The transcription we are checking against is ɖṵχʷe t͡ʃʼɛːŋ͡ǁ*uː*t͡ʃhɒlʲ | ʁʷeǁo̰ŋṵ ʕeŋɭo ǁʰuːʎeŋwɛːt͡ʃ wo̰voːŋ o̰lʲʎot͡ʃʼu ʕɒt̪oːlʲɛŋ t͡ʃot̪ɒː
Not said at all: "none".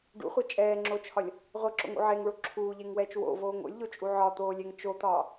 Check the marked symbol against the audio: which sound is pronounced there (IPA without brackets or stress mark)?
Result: oː